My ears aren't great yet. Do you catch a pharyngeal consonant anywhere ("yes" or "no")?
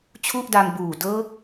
no